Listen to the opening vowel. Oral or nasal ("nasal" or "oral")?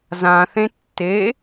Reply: nasal